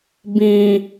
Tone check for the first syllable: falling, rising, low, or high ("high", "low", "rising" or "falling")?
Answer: low